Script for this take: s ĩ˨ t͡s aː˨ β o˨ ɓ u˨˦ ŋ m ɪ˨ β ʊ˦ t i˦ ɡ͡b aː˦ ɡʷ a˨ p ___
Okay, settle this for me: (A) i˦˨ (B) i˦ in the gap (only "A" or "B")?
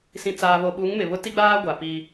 B